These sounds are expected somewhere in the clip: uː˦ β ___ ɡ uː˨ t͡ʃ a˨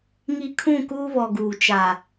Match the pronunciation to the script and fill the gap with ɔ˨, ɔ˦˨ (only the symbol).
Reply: ɔ˨